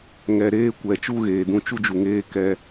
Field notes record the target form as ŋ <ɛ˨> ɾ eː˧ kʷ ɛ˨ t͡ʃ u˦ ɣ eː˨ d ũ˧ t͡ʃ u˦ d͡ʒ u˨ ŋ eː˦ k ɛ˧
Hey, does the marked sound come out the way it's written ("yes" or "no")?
yes